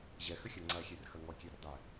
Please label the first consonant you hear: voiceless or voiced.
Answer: voiced